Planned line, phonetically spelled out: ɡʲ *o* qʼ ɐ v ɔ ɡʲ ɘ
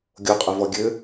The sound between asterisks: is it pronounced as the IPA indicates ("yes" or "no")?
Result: yes